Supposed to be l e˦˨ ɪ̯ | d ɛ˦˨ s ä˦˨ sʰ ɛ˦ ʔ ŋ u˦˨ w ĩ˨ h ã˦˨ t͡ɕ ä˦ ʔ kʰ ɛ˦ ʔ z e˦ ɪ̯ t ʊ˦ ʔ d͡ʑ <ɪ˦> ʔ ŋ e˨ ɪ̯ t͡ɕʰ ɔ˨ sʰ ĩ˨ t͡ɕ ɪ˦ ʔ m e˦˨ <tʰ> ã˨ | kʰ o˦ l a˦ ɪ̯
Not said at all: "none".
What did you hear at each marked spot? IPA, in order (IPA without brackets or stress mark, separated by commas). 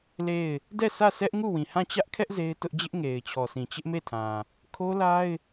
ɪ˦, tʰ